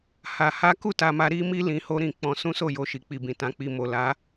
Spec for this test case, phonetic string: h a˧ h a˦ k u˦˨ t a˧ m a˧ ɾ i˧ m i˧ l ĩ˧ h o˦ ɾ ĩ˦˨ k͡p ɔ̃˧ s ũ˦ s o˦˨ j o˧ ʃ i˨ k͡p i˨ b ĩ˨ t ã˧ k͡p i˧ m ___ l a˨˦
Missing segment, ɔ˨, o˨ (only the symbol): o˨